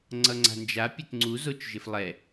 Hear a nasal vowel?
no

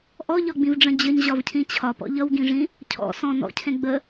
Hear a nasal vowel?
yes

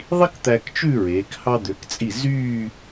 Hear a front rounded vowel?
yes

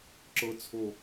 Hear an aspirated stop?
yes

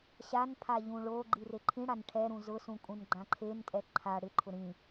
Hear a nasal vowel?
yes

